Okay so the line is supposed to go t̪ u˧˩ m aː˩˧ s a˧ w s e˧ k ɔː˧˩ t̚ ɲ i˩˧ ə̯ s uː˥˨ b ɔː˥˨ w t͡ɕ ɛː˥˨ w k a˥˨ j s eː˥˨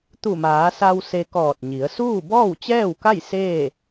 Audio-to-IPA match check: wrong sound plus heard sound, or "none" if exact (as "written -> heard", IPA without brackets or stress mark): none